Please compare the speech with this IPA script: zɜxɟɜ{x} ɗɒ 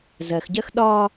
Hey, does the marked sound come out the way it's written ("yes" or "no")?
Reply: yes